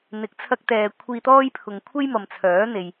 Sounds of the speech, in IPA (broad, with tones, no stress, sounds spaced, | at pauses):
n̪ ɪ˨˥ k̚ t͡sʰ ɐ˧ k̚ t̪ ɛː˨ kʷʰ iː˧ t̪ ɔː˥ j pʰ ʊ˨ ŋ kʷʰ e˥ j m ɐ˨ m t͡sʰ œː˨˥ n̪ e˨ j